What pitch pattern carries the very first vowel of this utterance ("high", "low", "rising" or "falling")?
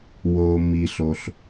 low